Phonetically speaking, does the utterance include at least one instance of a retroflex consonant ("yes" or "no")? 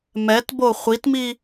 no